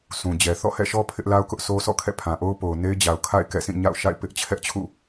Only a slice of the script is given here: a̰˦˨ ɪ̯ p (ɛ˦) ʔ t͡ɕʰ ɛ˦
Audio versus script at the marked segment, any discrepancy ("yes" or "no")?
yes